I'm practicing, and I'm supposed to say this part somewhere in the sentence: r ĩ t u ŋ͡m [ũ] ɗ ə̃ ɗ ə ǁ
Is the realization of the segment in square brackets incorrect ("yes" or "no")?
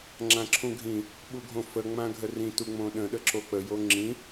yes